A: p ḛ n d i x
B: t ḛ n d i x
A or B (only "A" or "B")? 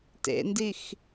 B